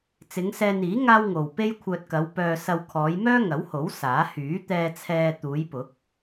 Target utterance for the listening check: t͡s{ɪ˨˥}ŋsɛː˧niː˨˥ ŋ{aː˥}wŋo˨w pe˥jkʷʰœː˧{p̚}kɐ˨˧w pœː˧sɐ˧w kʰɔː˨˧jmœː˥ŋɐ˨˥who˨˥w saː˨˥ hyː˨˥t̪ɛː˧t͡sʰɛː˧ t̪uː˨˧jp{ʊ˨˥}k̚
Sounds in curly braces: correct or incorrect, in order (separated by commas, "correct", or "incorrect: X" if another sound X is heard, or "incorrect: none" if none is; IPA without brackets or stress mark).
incorrect: ɪ˨˧, correct, incorrect: t̚, correct